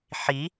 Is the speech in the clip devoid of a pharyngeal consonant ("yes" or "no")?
no